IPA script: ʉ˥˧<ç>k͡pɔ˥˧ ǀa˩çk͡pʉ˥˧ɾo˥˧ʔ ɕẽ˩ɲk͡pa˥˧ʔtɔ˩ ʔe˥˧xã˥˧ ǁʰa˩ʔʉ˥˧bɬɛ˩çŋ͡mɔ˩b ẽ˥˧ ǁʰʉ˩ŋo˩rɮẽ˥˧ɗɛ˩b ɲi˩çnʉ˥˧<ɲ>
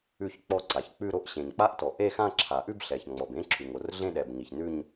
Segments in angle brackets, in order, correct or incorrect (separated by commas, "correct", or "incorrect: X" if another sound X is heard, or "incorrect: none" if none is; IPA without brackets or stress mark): correct, correct